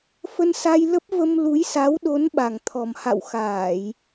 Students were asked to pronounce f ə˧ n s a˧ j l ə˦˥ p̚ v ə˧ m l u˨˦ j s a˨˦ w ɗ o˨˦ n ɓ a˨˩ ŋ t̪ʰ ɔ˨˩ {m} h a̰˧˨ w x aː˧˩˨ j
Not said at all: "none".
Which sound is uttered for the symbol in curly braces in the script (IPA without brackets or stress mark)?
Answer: m